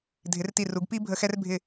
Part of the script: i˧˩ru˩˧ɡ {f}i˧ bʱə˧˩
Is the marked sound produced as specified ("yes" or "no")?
no